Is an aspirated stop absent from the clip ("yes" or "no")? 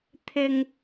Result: no